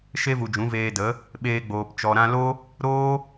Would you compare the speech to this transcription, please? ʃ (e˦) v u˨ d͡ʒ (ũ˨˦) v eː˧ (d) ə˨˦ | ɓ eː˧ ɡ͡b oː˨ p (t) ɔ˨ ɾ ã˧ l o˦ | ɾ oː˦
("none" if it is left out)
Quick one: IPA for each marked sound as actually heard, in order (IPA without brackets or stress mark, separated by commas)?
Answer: e˦, ũ˨˦, d, t͡ʃ